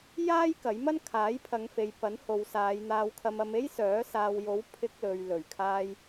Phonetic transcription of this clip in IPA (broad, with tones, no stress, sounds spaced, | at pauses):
j aː˥ j k ɐ˨˥ j m ɐ˥ n kʰ aː˨˥ j pʰ ɐ˨˧ ŋ f e˨ j p ɐ˨˥ n h o˨ w s aː˨˧ j n̪ aː˧ w kʰ ɐ˧ m ɐ˧ m e˥ j s œː˨˥ s aː˨ w j o˨˥ w pʰ ɪ˧ k̚ l ɵ˨ ɥ l ɵ˨˩ ɥ kʰ aː˧ j